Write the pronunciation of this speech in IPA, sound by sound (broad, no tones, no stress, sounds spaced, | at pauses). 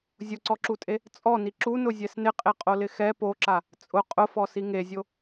zʲ ʊ ǀ ɔ ǁ u tʼ e | t͡sʼ ɔ n i ǁ u n ʊ zʲ ɛ s n ɪ qʼ e qʼ o l ɪ x ɛ p o ǁ a | t͡sʼ ʊ qʼ ʊ f ɔ s i ŋ e zʲ o